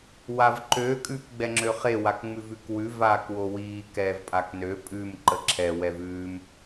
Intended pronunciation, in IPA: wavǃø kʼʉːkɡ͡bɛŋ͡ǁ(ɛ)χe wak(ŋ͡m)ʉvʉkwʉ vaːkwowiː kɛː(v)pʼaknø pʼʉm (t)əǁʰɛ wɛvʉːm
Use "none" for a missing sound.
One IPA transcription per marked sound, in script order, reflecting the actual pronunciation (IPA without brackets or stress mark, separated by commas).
ø, ŋ͡m, v, ǃ